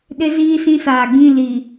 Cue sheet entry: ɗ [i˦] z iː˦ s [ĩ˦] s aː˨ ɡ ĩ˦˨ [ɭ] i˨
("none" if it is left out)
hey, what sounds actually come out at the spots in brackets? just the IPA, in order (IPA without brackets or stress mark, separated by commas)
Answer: ɪ˦, ĩ˦, l